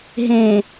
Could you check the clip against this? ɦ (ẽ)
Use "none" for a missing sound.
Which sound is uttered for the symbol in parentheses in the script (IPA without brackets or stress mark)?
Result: ẽ